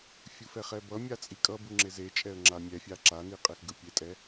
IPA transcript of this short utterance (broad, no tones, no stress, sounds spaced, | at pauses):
fʲ u f ɛ χ ɛ b ʌ mʲ a t͡sʼ i kʼ ʌ b u ŋ͡ǁ e z e t͡ʃʼ ɛ ə̯ ŋ͡ǁ a mʲ ɛ fʲ a ǁ a n i qʼ e x ɡ ɯ pʲ e tʼ ɛ